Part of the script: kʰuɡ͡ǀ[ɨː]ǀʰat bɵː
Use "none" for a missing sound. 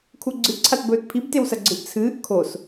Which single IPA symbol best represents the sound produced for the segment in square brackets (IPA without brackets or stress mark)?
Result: ɨ